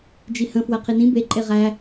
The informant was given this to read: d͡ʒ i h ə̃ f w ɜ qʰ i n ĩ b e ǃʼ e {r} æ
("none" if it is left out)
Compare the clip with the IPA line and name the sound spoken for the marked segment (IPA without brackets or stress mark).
ʁ